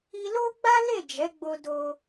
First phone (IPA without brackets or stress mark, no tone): i